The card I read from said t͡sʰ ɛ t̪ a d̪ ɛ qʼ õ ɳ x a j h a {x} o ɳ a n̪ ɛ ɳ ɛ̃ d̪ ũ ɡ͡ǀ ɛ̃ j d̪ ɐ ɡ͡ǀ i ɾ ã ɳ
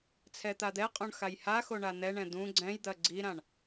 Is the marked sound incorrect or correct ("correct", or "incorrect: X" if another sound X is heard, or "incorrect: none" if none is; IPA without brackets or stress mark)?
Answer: correct